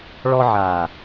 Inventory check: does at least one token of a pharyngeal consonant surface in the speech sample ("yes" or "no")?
yes